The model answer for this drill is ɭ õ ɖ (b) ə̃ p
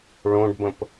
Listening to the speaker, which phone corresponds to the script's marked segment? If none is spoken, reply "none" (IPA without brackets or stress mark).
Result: b